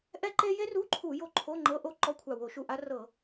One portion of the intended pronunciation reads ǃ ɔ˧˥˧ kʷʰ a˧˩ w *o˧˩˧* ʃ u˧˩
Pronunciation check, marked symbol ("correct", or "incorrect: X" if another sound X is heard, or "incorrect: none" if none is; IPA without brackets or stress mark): correct